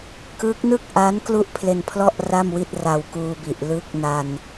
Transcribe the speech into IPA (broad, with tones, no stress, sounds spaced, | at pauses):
k ɯ˦˥ k̚ n ɯ˥˩ k̚ ʔ a˦˥ n k l u˥˩ ʔ pʰ l e˧ n pʰ l ɔ˥˩ ʔ r a˥˩ m w i˥˩ t̚ r a˧ w k uː˧ b i˨˩ ʔ l ɯ˦˥ k̚ n a˧ n